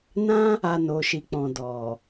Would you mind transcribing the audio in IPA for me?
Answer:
nã˦ | a˧no˨ʃi˨k͡pɔ̃˨ dɔ˨

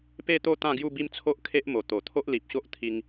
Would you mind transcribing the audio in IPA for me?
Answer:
pe˥˧t̪o˥˧ t̪ã˥˧ɡju˥˧bi˦m t͡sʰo˦ʔkʰe˦ʔmo˨˩ t̪o˨˩ t̪ʰo˦ʔli˨p̚ɕo˦ʔt̪ʰi˧ŋ

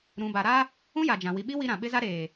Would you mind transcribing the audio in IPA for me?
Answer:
ɾũ˨ba˨ɾa˦ | ũ˦ja˨d͡ʒã˨ wi˨ɓi˦ wi˦ɾã˨ ɓɪ˦za˦ɾeː˨

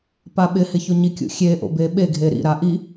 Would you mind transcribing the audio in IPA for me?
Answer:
paɓɪhɪ çoɲikʲṵ xʲeʔo̰ beɓeɡʱe ɾḭɾa ʔi

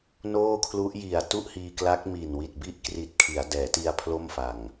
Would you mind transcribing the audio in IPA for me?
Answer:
noː˥˩kʰlu˦˥ʔ ji˨˩a̯ tu˥˩ʔhiː˧kla˦˥k̚ mi˨˩nwi˨˩t̚ bi˦˥ʔkri˨˩t̚ kʰi˩˦a̯dɛː˩˦ti˧a̯ pʰlo˥˩mfa˨˩ŋ

